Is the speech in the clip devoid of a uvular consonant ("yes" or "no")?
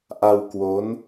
yes